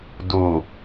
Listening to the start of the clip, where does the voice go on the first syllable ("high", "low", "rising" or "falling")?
low